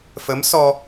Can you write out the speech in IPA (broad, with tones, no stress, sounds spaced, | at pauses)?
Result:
f ə˧˥ m s ɔ˧